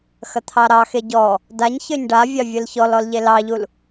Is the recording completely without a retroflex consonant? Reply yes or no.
no